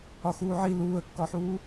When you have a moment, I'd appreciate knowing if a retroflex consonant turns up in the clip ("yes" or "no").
no